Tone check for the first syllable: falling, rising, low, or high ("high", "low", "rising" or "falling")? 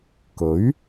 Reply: rising